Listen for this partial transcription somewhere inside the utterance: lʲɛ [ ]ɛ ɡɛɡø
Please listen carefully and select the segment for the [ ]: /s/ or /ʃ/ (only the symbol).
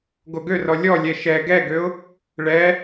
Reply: ʃ